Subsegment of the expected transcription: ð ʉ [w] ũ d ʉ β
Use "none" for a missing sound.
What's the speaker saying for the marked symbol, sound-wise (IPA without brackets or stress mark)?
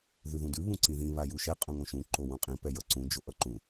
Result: ð